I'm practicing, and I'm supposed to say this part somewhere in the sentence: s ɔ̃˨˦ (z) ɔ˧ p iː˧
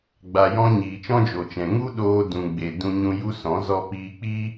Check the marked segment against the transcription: correct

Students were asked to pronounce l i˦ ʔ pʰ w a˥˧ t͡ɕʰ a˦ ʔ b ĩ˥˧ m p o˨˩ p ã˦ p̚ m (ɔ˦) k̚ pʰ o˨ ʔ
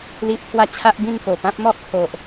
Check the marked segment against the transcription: correct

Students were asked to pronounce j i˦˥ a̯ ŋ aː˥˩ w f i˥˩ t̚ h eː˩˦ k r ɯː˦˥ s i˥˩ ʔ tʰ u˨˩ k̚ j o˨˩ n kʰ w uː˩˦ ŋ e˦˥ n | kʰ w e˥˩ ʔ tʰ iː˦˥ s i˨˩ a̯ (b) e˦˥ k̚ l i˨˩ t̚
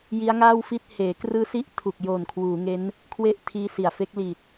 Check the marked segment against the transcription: incorrect: f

